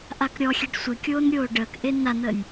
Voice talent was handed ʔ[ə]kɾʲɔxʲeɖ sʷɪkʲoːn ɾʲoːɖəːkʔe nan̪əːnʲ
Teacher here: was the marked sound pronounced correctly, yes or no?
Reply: no